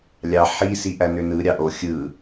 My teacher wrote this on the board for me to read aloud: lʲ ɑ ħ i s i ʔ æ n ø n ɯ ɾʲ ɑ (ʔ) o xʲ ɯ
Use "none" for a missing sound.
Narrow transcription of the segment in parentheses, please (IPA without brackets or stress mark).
ʔ